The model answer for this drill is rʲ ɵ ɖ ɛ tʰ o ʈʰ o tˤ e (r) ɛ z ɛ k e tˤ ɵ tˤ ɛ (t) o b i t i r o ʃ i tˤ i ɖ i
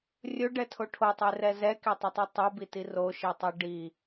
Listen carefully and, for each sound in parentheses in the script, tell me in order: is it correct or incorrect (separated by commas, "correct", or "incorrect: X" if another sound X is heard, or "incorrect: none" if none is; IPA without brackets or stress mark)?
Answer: correct, incorrect: tˤ